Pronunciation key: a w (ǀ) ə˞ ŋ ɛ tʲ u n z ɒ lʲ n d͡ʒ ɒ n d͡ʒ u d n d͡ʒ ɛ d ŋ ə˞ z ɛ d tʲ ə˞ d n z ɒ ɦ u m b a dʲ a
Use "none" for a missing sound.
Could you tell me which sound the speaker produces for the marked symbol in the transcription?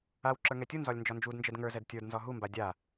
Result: ǁ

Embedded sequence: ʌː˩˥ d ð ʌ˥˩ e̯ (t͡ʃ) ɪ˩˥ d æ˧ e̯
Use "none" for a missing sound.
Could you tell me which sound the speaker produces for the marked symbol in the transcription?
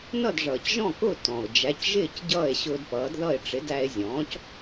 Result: ʈ͡ʂ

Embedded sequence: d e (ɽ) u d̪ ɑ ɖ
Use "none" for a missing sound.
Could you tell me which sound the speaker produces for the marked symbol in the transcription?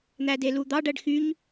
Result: l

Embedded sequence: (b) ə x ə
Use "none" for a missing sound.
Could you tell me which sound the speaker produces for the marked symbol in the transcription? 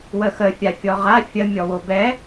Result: w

